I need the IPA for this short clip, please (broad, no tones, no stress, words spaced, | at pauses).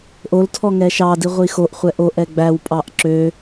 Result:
ʔoltʰɔ ŋɛʃɑdi ʁʷixoʔχʷɛ ʔoʔɛ ɡ͡bæwpʼɑʔ ǁø